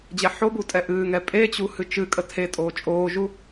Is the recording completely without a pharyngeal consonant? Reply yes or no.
no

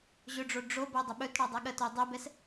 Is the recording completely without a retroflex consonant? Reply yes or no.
no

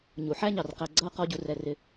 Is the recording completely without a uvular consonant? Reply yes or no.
no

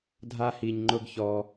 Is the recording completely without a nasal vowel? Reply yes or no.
yes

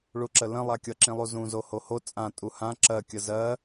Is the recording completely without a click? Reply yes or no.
no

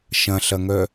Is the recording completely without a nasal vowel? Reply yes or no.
no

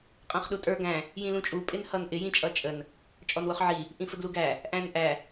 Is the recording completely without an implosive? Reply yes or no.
no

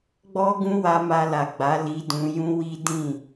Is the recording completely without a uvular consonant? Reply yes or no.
yes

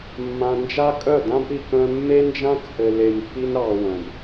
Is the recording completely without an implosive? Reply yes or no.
yes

